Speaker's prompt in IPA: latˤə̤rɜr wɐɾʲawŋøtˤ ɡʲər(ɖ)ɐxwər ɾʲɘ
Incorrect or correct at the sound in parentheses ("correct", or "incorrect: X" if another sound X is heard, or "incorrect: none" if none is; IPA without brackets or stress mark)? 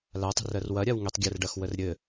correct